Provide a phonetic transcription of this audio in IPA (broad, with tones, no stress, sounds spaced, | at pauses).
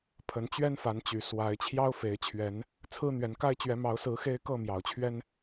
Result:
pʰ ə˨˦ n t͡ɕ ɥ ɛ˦ n f a˨˦ n t͡ɕ y˨˩ s w a˨˦ ɪ̯ t͡ɕʰ j ɑ˦ ʊ̯ f e˨˦ ɪ̯ t͡ɕʰ ɥ ɛ˨˦ n | t͡sʰ ɹ̩˦ n̪ ɥ ɛ˨˦ n k a˦ ɪ̯ t͡ɕ ɥ ɛ˨˦ m ɑ˨˦ ʊ̯ s ɹ̩˨˦ x e˦ ɪ̯ k ɤ˥˨ m j ɑ˨˩ ʊ̯ t͡ɕʰ ɥ ɛ˦ n